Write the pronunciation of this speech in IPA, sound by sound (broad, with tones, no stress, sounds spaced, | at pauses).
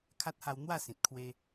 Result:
kʰ a˦ t̚ h a˧ w n̪ w a˥˧ s ĩ˨ t̚ kʰ w e˧